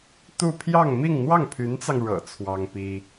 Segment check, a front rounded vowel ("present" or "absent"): present